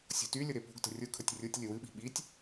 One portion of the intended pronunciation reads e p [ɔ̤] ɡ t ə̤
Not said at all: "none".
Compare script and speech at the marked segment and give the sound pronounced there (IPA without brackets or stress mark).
o̤